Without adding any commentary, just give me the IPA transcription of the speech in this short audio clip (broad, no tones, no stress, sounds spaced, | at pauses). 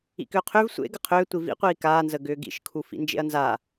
ḭ k ʏː qʰ ʏː v sʷ ḛ ɡ ə qʰ ʏː tʷ i v ḭ qʷ iː k aː n z ə ɡ ʏː ɡ ḭ ʃ kʰ u f ḭ n d͡ʒ ḛ ɐ̯ n z a